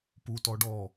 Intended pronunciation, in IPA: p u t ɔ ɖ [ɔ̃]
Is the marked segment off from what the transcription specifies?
yes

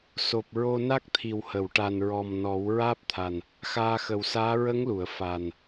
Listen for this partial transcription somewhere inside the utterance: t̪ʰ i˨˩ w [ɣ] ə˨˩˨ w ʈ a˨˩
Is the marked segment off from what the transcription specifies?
yes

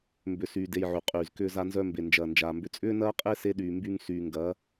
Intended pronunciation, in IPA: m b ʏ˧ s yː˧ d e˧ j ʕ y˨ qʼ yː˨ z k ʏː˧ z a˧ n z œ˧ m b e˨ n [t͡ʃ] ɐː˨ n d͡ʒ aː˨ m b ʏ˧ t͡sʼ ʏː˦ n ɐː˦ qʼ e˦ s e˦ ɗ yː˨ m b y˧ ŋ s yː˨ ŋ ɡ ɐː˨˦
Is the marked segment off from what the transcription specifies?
yes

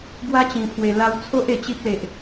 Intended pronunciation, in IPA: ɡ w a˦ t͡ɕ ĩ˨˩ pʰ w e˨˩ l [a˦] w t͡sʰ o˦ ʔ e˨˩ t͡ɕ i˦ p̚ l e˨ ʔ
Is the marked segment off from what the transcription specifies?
yes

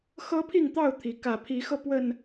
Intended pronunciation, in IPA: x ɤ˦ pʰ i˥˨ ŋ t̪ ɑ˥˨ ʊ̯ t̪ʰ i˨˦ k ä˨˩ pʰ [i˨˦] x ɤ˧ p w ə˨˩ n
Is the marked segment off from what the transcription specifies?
no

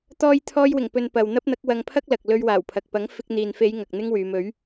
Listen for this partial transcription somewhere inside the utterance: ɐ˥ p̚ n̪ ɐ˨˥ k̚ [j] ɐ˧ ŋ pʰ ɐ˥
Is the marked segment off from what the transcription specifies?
yes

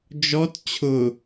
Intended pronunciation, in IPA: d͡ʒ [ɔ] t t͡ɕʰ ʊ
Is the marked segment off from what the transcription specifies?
no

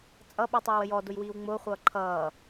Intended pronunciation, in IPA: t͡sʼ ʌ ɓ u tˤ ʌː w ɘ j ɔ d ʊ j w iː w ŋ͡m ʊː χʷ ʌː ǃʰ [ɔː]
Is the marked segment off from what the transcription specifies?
yes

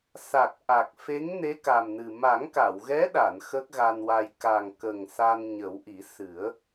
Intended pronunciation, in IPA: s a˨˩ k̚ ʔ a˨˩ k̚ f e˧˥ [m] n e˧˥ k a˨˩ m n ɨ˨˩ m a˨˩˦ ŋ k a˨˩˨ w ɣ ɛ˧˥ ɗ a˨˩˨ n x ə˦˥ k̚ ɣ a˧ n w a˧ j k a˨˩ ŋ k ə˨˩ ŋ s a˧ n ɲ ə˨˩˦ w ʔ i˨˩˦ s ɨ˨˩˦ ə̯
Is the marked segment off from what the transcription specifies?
yes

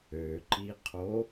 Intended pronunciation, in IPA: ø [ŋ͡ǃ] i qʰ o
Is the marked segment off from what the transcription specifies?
yes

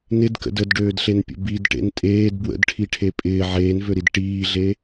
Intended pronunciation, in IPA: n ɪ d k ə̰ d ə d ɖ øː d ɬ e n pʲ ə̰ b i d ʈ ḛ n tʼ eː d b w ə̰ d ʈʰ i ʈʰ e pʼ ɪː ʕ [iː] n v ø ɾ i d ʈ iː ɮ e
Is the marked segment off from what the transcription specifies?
yes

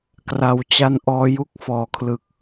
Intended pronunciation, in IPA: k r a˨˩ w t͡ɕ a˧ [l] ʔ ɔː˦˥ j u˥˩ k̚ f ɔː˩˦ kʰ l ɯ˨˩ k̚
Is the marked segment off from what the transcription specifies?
yes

